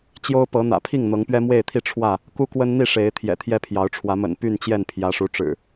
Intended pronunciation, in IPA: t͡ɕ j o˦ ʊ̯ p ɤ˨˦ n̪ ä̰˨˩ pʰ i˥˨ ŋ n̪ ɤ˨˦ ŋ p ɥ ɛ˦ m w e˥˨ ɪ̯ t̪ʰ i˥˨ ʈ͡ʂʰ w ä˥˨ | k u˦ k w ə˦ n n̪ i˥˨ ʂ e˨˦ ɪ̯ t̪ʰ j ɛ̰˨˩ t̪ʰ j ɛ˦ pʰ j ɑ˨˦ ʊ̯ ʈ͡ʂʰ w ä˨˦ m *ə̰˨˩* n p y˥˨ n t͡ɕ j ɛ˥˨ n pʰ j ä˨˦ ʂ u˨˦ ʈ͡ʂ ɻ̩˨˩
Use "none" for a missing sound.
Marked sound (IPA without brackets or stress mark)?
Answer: ə̰˨˩